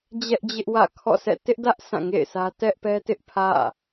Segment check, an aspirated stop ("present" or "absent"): present